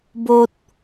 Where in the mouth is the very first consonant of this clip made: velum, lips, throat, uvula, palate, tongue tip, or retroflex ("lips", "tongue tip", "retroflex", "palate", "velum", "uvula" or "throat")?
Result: lips